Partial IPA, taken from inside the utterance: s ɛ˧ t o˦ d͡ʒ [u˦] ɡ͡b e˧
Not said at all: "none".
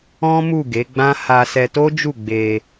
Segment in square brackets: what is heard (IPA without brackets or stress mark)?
u˦˨